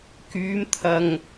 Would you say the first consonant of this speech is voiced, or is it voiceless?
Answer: voiceless